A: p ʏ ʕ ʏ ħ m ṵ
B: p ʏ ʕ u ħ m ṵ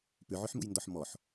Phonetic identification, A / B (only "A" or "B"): A